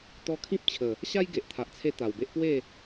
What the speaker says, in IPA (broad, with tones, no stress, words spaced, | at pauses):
t̪ɔ˧kʰĩ˦p̚t͡ɕʰə˨˩ | ɕa˦jɡe˨ʔt̪ʰa˨ʔt͡sʰe˧ t̪a˨˩wbe˦ʔ pwe˥˧